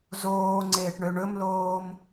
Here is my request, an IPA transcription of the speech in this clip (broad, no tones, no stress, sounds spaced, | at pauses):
z oː ŋ͡ǀ eː ʈ ɳ ø ɳ ɵ m l oː m